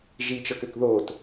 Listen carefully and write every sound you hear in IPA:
ʒit͡ʃɤkøk ðot

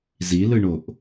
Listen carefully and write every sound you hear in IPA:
zilɯɳoʔ

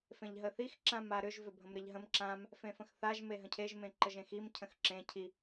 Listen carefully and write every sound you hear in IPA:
fẽʎɦəθix ǁãmaɾʏʒ vʏbʱə̃mɾeʎɦə̃m ǁãm | fẽfə̃xθaʒ meɦə̃cʰeʒ mẽǃəʒẽxim cʰə̃xǁẽ cʰi

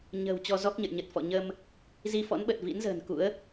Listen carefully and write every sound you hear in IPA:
ɲə̤˨˩w t͡ɕɔ˧ zɔ˦˥k̚ɲə̰˧˨jɲə˨˩t̚fɔ̰˧˨ ɲə˧m | zi˧fɔ̰˧˥nɓə˨˩t̚ vḭ˧˥nzə̤ː˨˩nkṵ˧˥ə̯

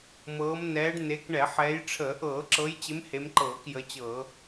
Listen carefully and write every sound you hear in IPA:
mɤː˨˦mnɛː˨˦ɖ ne˨˦kɳɛ˧˩˧ħɛː˨˦j ʈ͡ʂʰəː˧˩˧ ʔɤː˧˩˧ǁɤ˨˦jt͡ɕɪ˨˦m he˨˦mǃɤː˧˩˧kjə˨˦t͡ɕɤː˧˩˧

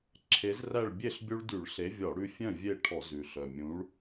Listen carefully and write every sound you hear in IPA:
ǁʰe˨˥zræ˥˨ɭ bʲe˥˨ɬ bʲu˦ɭdy˧˩˧ɭɬe˨˥ vʲɔ˧˩˧ɽʉ˦fʲœ̃˥˨ vʲe˥˨ ʈʰɔ˧˩˧zʉ˨˩ ɬœ˨˩mʲũ˨˥ɭ

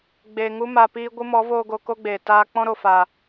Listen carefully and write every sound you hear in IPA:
ɡ͡beː˨ ŋu˧ma˨ piː˧ ɡʷɨ˧mɔ˨˦voː˧ ɡo˧ko˦ɡ͡beː˨ taː˧k͡pɔ̃˦ɾo˨ faː˨

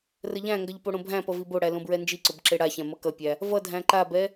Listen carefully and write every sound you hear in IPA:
rəʎæ̃ŋɡʌʎ poɽõbʱæ̃pʌ viboɽæ lõbɹɛnd͡ʒiǀʊb ǁeɽaçæ̃ mʌkʌpʲæ | vʌdʱæ̃ ǃabɛ

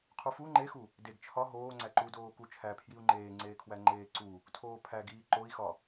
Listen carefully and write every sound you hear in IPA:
qʰufu ŋ͡ǃexu | deɡ t͡ʃʰɒ ɦoː ŋ͡ǀæǃudoː kut͡ʃʰæ pʰjiu̯ŋ͡ǃeːŋ͡ǀeːkʰwæ ŋ͡ǃeːǀu | tʰoːpʰæɡiː ǃoi̯xɒ

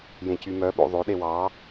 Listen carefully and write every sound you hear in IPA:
jẽcymœ ɓo̰ðˤo ɗewɑ

